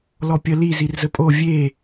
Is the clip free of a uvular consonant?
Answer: yes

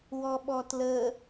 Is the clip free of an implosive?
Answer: no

